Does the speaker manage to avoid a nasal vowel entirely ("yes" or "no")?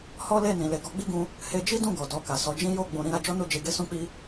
no